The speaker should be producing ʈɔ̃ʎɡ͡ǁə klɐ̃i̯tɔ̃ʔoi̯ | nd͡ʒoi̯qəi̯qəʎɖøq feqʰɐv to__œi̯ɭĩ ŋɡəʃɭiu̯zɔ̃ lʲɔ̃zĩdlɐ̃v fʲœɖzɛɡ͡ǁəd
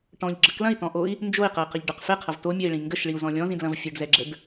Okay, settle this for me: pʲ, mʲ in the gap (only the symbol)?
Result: mʲ